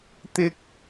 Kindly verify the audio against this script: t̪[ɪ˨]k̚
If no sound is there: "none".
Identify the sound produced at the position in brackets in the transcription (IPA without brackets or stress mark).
ɪ˥